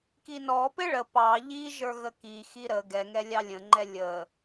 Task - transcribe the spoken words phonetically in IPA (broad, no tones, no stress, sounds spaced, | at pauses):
k i n ɔ p ɪ ɭ ə p ɑ ʎ i ʒ ə˞ ɣ ə k i x i ɾ ə ɡ ɛ ŋ ɛ lʲ ɑ lʲ ə̃ ŋ͡ǃ ɛ lʲ ə